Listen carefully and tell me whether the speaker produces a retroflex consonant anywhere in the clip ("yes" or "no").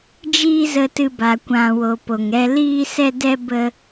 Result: no